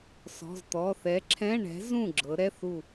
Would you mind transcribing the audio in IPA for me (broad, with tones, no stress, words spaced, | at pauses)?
sɔ̤˩˧˩zt̪ɔ˩˧˩θɛ˨˥ ǁʰɛ̃˧˥˧ɳɛ̤˨˥ zũ˥˩ɡ͡ǁɤ˩˧ ɾɛ˧˥˧θu˥˩